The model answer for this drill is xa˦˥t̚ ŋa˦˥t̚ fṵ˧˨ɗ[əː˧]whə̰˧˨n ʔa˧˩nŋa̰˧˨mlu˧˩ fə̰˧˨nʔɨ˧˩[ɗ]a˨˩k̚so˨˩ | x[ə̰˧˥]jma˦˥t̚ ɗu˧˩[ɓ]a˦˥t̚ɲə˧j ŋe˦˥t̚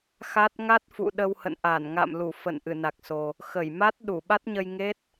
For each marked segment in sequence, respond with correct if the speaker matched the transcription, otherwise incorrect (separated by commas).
incorrect, incorrect, incorrect, correct